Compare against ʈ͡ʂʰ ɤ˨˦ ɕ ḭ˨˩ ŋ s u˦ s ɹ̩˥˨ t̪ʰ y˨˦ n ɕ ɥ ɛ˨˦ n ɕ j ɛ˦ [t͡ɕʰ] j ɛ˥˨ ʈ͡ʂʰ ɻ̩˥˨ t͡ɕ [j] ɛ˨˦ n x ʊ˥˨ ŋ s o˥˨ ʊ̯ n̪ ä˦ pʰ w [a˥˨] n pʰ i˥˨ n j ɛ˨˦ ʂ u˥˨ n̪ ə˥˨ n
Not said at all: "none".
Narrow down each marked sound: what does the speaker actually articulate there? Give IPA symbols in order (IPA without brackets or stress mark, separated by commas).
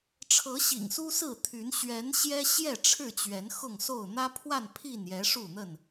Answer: ɕ, ɥ, a˥˨